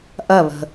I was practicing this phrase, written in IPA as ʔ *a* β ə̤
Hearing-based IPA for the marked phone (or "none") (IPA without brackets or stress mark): ɐ